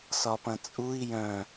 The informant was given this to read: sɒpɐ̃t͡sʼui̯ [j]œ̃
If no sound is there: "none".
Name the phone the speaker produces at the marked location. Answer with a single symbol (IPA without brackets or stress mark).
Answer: j